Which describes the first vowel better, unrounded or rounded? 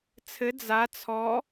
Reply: unrounded